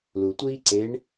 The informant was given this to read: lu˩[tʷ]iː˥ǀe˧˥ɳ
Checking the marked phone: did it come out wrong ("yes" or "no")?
no